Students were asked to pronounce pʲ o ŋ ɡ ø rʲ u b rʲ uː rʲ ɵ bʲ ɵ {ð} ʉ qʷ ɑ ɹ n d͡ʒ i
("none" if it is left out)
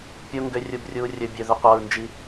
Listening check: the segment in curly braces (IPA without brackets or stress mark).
ð